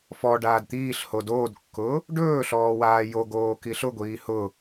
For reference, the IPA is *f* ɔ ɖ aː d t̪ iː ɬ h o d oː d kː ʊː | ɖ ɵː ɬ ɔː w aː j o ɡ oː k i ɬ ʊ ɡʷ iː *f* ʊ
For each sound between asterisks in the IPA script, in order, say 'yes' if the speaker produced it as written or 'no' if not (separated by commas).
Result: yes, no